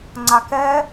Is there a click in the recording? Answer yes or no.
yes